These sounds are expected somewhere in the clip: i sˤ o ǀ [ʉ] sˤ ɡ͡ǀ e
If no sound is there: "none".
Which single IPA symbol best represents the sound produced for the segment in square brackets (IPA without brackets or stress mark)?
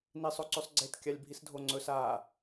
ʉ